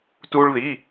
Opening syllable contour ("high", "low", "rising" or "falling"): high